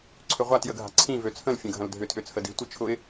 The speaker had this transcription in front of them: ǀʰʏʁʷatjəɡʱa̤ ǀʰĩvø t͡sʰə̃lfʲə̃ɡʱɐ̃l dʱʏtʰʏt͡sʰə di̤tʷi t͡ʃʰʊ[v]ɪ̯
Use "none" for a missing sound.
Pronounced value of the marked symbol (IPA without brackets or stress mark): none